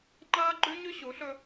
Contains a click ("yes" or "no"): yes